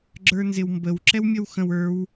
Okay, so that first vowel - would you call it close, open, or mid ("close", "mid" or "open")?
mid